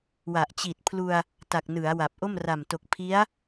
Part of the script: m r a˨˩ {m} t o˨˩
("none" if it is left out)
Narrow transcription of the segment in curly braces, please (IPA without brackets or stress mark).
m